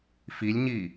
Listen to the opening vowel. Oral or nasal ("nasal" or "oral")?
oral